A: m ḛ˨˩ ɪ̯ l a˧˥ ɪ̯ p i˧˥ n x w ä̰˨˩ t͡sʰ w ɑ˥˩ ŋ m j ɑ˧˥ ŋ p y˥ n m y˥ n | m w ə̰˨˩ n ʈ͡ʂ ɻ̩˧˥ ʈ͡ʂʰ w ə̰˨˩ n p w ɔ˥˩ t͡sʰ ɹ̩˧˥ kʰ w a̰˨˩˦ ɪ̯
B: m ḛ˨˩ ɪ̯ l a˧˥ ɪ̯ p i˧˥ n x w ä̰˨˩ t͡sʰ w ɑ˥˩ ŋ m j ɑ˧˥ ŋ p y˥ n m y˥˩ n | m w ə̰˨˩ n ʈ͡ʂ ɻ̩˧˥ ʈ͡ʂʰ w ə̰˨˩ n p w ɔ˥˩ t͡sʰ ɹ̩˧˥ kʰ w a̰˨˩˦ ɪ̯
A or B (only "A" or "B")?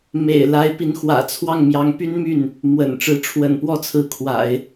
B